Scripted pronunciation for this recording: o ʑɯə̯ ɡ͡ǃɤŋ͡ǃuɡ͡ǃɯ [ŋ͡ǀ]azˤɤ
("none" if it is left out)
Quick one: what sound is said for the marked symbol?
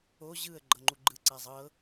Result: ǀ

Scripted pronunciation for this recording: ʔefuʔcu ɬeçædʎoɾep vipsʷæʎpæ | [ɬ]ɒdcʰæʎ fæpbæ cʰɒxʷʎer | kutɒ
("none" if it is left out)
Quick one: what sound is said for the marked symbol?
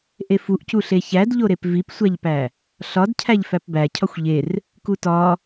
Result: ɬ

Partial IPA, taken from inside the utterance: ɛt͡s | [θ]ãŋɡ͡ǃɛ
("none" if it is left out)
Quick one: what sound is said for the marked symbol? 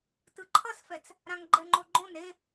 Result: ɾ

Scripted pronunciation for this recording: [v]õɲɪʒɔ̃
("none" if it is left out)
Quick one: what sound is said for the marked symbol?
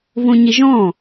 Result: v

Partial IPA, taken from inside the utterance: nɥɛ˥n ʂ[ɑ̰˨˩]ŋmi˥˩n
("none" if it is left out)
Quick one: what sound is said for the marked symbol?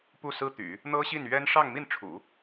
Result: ɑ˥˧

